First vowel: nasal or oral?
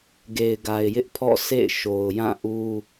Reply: oral